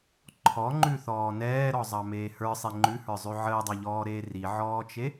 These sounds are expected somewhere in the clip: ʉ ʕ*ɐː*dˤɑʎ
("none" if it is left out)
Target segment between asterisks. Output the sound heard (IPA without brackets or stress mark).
əː